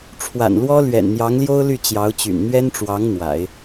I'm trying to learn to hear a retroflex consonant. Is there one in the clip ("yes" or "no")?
yes